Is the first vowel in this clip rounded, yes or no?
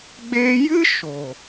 no